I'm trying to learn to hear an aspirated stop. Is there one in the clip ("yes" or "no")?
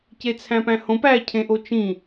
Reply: yes